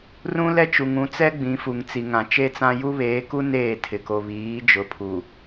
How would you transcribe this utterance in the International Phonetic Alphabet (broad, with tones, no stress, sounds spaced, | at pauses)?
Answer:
r ũ˦ l ɛ˦ t͡ʃ u˨ ŋ ũ˨˦ t͡s ɛ˦ ɡ͡b ĩ˨˦ f u˨ ŋ t͡s i˨ ŋ ã˨ t͡ʃ e˦ t͡s ã˦ j u˦ β eː˨˦ k u˦ n eː˦˨ tʰ ɪ˨ k o˨ β iː˨˦ d͡ʒ ʊ˨˦ pʰ u˨